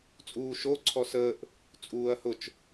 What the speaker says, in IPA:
t͡sʼ uː ʃ o ǀʰ ɔ s əː ʔ | t͡sʼ uː ɐ̯ h ʊ t͡ʃ

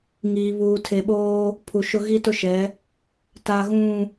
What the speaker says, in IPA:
ŋ iː˨ β uː˨ tʰ e˨ ɓ oː˦ | pʰ u˨ ʃ ʊ˦ ɣ i˦ t ʊ˦ ʃ ɛ˨˦ | t a˨ ɣ ũ˨

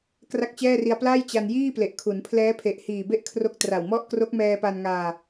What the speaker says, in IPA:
k r a˥˩ k̚ t͡ɕ ɛː˥˩ r i˧ a̯ p l a˥˩ j t͡ɕ a˧ n j iː˥˩ p l e˨˩ ʔ kʰ u˩˦ n pʰ l ɛː˦˥ pʰ e˨˩ ʔ h iː˨˩ b e˥˩ ʔ kʰ r o˦˥ k̚ t r a˨˩ w m ɔ˥˩ ʔ k r o˦˥ k̚ m ɛː˧ p a˧ n ŋ aː˧

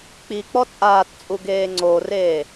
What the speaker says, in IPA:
k͡p i k͡p ɔ t͡sʼ aː t t͡sʼ u ɡ eː ŋ͡ǀ o r eː

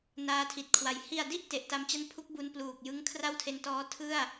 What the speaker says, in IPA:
n aː˧ tʰ i˨˩ t̚ kʰ w a˨˩ j h i˨˩ a̯ d i˥˩ ʔ t e˨˩ ʔ t a˧ m t͡ɕ a˥˩ n pʰ u˦˥ k̚ b u˧ n p l uː˨˩ k̚ j ɯ˦˥ ŋ kʰ r a˥˩ w tʰ e˧ n t ɔː˦˥ tʰ ɯ˥˩ a̯

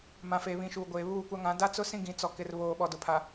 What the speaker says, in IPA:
m ã˨ f eː˨ β ĩ˨˦ ʃ uː˨ ɡʷ eː˨ β uː˦˨ kʷ a˦ ŋ ã˨˦ d a˦ t͡s ʊ˦ s ĩ˦ ɡ ĩ˨ t͡s ɔ˨ k ɪ˨ r β oː˨ ɓ ɔ˨ d ʊ˨ pʰ a˨

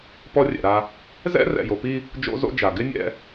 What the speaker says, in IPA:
p ɔ˦ rʲ ɛ̰˨ ɾ a˦ | z ɛ̰˦ r ɛ̰˨ j o˨ p i˦ | d͡ʒ o̰˦ z o̰˦ d͡ʒ a˨ ɡ ɪ˦ nʲ ɛ̰˦

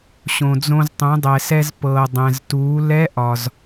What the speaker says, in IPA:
ɕ õ˩ d͡z õ˧ z tˤ ũ˩˧ dˤ ɛ˩ s ɛ˧ z p ɤː˩ dˤ ɛ̃˩ z t uː˩˧ l ɛ˧˥ ʔ ɒ˩ z

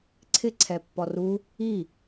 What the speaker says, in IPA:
ǀʰ ɪ ǀʰ ɛ pː ɔ r u | i

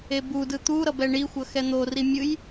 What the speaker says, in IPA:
e b u d ɯ t̪ u ɾ ʌ b ɛ ɳ i xʷ ʌ x ɛ n̪ o r i mʲ ɯ j

